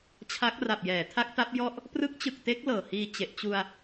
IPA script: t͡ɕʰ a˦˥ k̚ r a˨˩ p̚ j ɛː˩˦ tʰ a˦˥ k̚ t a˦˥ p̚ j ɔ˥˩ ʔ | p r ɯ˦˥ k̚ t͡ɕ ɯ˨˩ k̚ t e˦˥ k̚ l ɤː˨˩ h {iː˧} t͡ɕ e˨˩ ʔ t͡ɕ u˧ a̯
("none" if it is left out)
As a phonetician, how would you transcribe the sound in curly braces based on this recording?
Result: iː˧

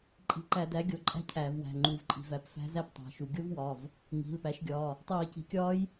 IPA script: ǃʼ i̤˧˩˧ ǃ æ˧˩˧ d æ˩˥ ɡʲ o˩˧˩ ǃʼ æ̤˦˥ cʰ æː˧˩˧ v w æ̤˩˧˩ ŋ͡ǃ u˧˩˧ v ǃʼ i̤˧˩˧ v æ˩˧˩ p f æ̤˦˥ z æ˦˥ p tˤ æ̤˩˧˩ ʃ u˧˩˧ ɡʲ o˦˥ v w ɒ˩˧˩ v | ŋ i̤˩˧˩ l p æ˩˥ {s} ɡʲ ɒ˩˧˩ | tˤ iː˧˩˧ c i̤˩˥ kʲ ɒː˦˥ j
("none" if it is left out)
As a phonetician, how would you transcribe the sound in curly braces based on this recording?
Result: ʃ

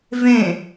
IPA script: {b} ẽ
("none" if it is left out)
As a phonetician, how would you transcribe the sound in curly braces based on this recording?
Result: v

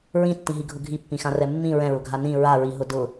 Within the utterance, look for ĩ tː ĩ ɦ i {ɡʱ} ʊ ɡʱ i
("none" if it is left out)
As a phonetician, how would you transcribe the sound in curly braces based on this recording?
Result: ɡʱ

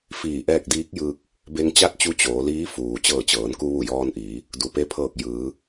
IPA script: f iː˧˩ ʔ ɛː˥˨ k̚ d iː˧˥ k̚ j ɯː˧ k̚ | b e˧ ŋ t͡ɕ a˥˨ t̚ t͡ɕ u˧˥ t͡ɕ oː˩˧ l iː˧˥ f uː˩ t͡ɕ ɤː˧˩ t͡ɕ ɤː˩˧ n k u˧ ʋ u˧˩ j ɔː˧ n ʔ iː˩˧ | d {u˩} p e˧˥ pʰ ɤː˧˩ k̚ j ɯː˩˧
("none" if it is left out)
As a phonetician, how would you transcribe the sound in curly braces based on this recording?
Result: u˩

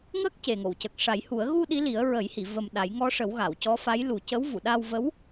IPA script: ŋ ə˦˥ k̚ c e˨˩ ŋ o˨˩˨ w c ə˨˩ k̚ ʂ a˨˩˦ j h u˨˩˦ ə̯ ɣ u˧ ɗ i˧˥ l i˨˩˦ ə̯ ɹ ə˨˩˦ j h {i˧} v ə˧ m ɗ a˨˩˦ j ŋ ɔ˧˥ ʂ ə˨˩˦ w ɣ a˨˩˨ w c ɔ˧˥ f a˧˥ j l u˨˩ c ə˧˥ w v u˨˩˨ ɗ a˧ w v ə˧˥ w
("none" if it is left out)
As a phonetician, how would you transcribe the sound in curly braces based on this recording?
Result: i˨˩˨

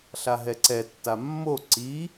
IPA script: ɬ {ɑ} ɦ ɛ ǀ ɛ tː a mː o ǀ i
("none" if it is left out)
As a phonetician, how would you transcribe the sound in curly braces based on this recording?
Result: a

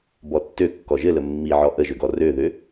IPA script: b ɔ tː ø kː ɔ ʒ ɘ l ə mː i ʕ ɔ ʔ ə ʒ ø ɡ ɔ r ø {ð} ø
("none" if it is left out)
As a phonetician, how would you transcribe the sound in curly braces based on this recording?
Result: ð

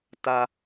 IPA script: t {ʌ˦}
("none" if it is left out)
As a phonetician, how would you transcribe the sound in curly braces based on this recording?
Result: a˦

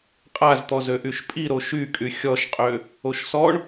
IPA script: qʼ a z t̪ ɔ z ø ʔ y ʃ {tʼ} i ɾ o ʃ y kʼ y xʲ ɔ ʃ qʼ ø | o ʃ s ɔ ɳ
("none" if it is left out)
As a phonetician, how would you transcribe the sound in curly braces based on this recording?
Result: pʼ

